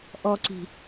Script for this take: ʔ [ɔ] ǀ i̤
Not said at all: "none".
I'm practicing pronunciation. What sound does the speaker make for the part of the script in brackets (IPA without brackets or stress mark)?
ɔ